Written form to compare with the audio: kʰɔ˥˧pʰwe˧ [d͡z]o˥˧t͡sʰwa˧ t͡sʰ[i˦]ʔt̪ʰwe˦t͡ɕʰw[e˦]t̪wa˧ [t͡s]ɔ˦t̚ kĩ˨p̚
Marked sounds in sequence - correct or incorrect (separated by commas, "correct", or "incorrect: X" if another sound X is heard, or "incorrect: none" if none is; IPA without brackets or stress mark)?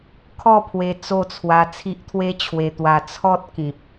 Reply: incorrect: t͡s, correct, incorrect: e˧, incorrect: t͡sʰ